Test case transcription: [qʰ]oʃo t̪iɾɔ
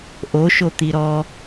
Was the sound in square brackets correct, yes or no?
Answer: no